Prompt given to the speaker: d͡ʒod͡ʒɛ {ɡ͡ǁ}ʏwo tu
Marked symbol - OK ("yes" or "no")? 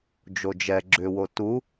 yes